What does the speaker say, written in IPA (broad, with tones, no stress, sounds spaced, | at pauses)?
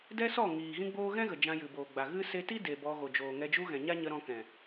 d ɛ˦ s ɔ˦˨ ŋ iː˨ ɣ ĩ˦ ɡ͡b oː˦ ɣ ɛ̃˦ ɣ ə˨ d͡ʒ ã˧ j ɨ˨ b oː˨ ɡ͡b a˨ ɣ ɨ˦ s e˧ t i˦ d e˨ b ɔ˧ ɣ o˨ d͡ʒ oː˨ ŋ ɛ˧ d͡ʒ u˦ ɣ ɛ̃˨ ɲ a˦ ɲ ə˧ ɾ ɔ̃˧ k ɛ̃˨